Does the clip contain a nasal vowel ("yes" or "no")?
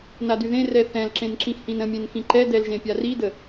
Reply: yes